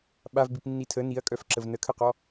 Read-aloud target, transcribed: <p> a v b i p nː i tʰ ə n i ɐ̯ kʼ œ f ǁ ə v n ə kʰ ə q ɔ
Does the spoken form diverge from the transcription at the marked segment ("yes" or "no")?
yes